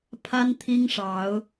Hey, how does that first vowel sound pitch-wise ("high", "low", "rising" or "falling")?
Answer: high